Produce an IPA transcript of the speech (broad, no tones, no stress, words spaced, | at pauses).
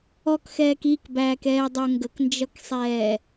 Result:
ɔkxɛːk ikbæːkɛːdˤə˞ ŋɡəknd͡ʒʌksˤɛː